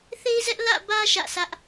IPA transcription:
θ e˦ ɪ̯ z ɛ˦ ʔ l ä̰˦˨ b ä˦ ʃ ä̰˦˨ s ä˦ ʔ

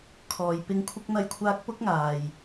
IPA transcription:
kʰ ɔː˨ j p ɪ˧ ŋ kʷʰ ɪ˧ k̚ n̪ ɐ˧ j kʷʰ aː˧ k̚ p ʊ˥ k̚ ŋ aː˨ j

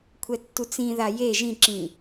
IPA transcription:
kʷʰ ɛ tː u t͡s ĩ ð a j e ʒ ĩ ǁ ĩ

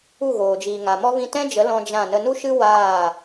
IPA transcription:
u˦˨ ɣ oː˨ d͡ʒ iː˨ ŋ a˨ m ɔ˦ v ĩ˧ t ɛ̃˦ d͡ʒ ə˨˦ l ɔ̃˦ d͡ʒ ã˦˨ n ə˦ n u˦ ʃ ɨ˦ w aː˦˨

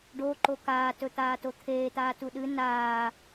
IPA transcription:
ɖ o ǃ o k aː t ɵ t̪ aː t o t̪ʰ eː t̪ aː t u ɗ ɨ n aː

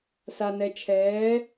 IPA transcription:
s a˨ n ɛ˨ t͡ʃʰ ɛː˨˦

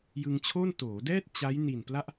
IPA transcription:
j ɯ˧ ŋ t͡ɕʰ oː˥˩ n t oː˩˦ d ɛː˥˩ t̚ t͡ɕ a˦˥ j n i˨˩ n p l a˥˩ ʔ

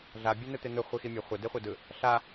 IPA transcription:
ɮ a bʲ ɛ n ɯ t̪ e n̪ ɯ χʷ i x i mʲ ʌ χʷ ʌ d e χʷ ɛ d ɯ | ɬ a

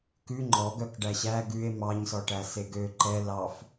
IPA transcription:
k ʉ ŋ͡ǃ ɔ ɡ œ k ɖ æ ɕ æ ɡ ʉ e̯ m ɑ ɲ s ɔ ʈ æ s e ɡ ø ǃ ɛ l ɑ f

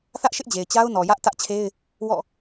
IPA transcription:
θ ä˦ ʔ ʃ ɪ˦ ʔ d͡ʑ e˨ ɪ̯ t͡ɕ a˦ ʊ̯ n ɔ˨ j ä˦ ʔ t ä˦ ʔ t͡ɕʰ e˦ ɪ̯ | w ɔ̰˦˨

